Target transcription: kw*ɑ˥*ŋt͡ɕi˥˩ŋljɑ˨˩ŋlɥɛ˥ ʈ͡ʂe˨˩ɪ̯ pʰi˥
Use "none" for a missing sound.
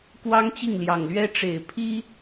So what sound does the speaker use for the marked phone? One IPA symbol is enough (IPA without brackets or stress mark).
ɑ˥